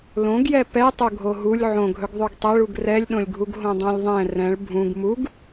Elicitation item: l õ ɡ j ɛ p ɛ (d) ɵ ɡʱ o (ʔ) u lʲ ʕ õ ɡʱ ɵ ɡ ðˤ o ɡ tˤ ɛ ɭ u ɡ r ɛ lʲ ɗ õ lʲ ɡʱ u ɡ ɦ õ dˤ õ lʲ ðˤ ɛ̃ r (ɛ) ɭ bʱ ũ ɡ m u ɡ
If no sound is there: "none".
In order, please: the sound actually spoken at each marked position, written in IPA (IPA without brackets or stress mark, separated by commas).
tˤ, ɦ, ɛ̃